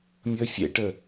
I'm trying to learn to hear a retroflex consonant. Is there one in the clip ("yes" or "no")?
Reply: yes